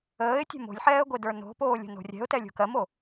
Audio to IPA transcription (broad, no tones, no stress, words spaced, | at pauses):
əːɪ̯tʲɛ̤ mo̤lʲħɛːə̯ɡʷe də˞no̤poːlʲə̤ no̤rʲɛ̤ʊ̯tɛlʲo̤ kɜmo